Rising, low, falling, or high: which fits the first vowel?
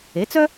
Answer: rising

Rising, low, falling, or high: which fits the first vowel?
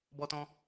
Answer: high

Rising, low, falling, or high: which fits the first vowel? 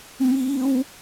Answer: high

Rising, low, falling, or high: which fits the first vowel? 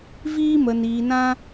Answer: high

